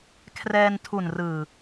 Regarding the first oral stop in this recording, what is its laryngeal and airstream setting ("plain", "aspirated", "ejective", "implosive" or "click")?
aspirated